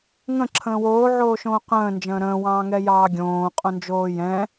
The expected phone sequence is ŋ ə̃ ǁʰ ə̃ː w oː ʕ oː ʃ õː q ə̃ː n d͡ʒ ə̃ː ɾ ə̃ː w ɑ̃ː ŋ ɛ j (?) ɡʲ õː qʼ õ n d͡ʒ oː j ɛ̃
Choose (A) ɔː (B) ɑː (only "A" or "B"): B